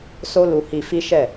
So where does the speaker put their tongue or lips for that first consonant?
tongue tip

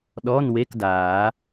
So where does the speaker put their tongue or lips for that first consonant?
tongue tip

